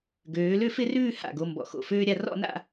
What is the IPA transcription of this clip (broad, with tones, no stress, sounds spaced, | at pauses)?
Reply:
ɡ øː˩˧ l ø˥˧ f ɪ˥˧ r ʉː˥˧ h a̰˧˩ ɡ o˩˧ m b ɔ̰˩˧ x o̰˧˩ f øː˥ ɾʲ a˧ r ɔ̰˥˧ n a̰˥˧